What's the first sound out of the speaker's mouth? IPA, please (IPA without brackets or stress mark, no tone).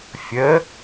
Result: fʲ